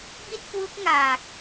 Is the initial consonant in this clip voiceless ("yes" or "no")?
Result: no